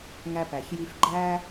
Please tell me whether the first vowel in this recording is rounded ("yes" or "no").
no